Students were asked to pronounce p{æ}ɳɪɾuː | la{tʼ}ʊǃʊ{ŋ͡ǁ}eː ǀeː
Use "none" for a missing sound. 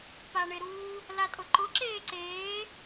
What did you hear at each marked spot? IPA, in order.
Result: a, tʼ, ǁ

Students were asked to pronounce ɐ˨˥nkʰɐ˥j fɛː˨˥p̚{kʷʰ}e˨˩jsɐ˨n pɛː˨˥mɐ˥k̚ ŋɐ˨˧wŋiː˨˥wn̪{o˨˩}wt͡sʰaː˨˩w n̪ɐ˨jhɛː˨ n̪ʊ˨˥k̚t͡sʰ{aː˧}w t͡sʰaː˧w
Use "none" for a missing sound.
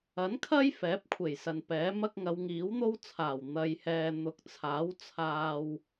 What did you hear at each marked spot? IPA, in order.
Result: kʷʰ, o˥, aː˨˥

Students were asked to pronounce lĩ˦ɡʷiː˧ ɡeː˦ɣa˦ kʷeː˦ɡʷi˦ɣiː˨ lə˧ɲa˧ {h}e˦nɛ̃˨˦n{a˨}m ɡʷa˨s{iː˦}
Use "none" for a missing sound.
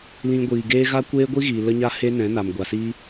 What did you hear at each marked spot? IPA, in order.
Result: h, a˨, iː˦

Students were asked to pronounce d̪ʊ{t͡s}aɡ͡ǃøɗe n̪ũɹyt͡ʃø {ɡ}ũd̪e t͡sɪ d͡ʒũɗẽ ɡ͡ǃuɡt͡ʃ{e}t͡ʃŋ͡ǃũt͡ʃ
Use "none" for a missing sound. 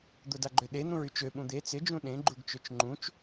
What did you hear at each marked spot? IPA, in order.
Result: d, ɓ, ø

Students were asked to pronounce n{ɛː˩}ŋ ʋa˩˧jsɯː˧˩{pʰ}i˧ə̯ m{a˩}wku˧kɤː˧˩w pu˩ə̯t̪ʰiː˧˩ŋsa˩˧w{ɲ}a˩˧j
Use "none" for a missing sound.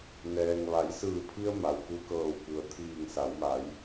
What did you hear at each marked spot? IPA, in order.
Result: ɛː˩, pʰ, a˩, m

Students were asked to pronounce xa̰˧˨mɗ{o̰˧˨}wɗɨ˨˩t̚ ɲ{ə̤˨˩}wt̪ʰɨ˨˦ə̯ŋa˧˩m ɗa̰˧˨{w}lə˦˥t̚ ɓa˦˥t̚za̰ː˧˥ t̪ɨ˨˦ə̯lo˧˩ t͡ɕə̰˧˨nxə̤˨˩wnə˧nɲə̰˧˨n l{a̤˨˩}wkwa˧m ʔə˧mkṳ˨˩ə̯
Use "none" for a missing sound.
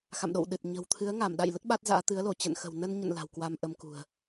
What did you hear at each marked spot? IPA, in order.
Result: o̰˧˨, ə̤˨˩, j, a̤˨˩

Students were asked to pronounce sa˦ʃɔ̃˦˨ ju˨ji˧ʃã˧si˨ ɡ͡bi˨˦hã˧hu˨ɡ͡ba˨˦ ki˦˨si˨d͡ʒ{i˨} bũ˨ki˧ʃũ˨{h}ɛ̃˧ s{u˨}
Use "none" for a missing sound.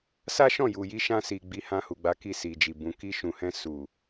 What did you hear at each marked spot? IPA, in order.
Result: i˨, h, u˨

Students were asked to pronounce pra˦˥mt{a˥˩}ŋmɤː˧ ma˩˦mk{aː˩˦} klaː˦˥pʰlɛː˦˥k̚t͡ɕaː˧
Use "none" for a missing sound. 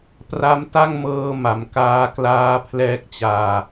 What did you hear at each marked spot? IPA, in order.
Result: a˥˩, aː˦˥

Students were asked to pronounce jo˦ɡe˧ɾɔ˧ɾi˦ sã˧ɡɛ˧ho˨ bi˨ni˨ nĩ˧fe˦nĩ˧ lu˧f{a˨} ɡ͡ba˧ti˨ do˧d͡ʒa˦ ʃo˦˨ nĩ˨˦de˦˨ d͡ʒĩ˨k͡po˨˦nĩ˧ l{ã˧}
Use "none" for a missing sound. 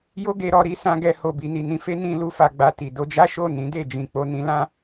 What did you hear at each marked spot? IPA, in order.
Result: a˨, ã˦

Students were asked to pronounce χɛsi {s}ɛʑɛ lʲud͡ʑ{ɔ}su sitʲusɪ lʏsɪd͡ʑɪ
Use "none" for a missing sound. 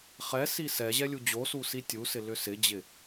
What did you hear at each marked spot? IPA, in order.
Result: s, o

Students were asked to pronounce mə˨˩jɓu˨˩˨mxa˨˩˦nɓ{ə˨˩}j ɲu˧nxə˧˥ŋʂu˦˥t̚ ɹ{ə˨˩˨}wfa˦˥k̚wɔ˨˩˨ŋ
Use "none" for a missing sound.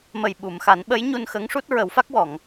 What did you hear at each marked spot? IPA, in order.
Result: ə˧˥, ə˨˩˦

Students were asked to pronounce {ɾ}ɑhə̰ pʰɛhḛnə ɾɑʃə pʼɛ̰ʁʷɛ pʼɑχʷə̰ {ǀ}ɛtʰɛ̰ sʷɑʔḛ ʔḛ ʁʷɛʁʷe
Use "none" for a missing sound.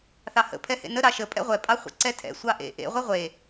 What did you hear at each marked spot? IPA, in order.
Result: θ, ǀ

